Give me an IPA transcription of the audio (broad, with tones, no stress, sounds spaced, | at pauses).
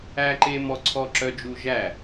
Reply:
æ˦ ǃ e˦ m ɔ˦ ǀʰ ɔ˦ ǁ œ˦ d͡ʒ u˦ ʒ æ˥˩